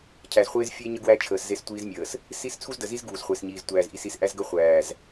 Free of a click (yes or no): yes